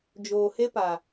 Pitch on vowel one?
low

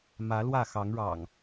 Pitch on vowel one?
rising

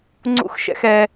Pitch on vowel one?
rising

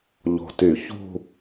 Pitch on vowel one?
low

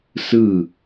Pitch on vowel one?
falling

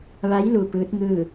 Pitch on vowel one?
rising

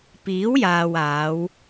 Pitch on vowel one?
rising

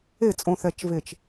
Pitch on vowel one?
falling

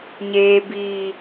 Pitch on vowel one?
high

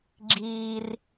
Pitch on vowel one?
high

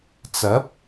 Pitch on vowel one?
rising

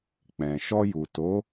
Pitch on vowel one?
low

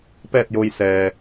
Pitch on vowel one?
falling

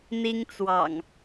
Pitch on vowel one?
high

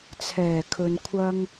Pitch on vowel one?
low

